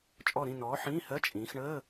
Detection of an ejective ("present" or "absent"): present